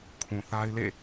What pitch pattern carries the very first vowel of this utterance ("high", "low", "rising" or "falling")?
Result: low